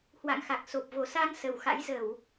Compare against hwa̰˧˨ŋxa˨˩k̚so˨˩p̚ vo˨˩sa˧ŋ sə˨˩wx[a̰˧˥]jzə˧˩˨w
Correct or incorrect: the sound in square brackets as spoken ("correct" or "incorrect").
correct